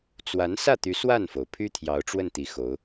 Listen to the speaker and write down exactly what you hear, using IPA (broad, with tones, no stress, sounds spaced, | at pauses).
t͡s w a˧˥ n s ä˥˩ t̪ y˧˥ s w a˥˩ n f o˩ ʊ̯ pʰ y˥ t̪ʰ j ɑ˧˥ ʊ̯ ʈ͡ʂ w ə˥˩ n t̪ i˧˥ x o˧˥ ʊ̯